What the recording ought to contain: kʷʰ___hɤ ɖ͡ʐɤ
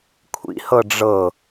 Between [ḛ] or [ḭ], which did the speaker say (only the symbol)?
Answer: ḭ